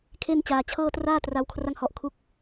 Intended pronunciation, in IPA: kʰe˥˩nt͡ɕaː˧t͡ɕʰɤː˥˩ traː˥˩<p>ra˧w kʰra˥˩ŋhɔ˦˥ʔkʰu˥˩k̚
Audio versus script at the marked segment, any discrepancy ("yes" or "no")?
yes